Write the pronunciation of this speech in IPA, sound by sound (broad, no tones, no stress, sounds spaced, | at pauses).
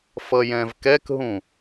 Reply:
f ʌ j ɛ̃ v k ɛ k ɦ ũ